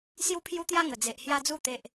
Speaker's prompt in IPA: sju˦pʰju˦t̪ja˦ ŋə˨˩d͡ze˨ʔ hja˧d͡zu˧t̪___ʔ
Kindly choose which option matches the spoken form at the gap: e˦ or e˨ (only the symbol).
e˨